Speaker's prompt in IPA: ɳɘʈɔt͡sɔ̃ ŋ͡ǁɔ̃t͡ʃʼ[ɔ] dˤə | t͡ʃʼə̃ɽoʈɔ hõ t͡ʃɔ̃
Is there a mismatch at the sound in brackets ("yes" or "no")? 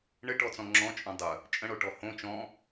yes